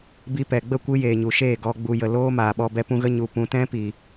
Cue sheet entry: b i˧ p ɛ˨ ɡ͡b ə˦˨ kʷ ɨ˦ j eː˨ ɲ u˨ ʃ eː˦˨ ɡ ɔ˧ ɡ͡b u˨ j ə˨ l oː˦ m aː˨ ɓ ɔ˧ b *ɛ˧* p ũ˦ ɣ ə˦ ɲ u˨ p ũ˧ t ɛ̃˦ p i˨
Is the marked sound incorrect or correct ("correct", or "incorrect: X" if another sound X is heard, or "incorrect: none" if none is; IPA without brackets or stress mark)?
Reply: correct